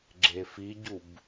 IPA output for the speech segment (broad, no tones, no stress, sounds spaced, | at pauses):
ɡ͡ǁ e f i ɟ u b